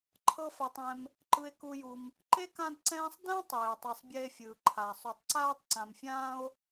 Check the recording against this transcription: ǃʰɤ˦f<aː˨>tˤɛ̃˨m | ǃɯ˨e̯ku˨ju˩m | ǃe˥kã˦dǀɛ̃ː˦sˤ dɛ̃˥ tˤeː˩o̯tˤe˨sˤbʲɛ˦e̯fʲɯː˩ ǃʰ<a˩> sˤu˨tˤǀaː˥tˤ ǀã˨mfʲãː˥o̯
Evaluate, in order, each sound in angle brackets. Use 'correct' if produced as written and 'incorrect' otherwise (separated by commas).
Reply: incorrect, correct